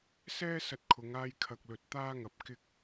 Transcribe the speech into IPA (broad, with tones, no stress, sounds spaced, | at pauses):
s ɛː˥ s ɐ˧ t̚ kʰ ʊ˨˧ ŋ aː˧ j kʰ ɐ˨ k̚ l ɵ˨ t̚ t̪ aː˥ ŋ ɐ˧ p̚ k ɪ˧ k̚